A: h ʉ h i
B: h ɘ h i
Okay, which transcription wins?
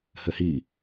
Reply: B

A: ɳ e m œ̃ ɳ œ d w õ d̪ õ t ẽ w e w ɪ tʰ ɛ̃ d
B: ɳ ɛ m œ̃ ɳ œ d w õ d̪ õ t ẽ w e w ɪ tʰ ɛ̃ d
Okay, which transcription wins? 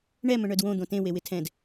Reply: B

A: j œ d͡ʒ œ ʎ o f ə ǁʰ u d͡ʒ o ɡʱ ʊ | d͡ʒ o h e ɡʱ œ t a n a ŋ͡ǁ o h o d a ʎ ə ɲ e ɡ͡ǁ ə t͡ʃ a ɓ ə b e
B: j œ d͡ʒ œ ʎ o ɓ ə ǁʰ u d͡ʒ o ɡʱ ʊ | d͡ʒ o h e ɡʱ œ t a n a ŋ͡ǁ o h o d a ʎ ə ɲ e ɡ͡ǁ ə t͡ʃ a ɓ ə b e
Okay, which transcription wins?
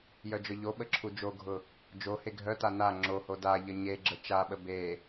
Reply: B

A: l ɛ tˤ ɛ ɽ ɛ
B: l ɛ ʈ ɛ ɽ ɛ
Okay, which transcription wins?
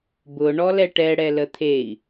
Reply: B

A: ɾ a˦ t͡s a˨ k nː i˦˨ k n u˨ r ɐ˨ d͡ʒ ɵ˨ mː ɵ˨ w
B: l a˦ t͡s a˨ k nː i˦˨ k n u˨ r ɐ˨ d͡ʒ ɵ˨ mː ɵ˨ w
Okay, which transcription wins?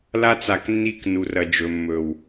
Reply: B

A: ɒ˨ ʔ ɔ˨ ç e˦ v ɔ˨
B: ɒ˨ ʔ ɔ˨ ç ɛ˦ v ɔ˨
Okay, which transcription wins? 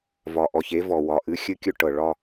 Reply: A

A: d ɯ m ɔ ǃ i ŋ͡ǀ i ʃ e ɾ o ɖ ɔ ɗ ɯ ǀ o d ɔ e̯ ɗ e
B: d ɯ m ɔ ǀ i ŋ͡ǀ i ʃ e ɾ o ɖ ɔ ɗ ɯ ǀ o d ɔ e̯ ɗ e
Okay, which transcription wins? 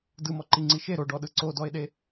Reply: A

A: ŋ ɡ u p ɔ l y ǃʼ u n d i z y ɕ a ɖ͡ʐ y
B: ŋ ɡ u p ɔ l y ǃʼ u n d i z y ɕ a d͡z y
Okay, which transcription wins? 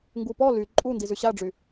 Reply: A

